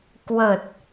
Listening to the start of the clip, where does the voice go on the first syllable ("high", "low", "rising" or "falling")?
low